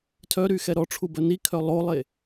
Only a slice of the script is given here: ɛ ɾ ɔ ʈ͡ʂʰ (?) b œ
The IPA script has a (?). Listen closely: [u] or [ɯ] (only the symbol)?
u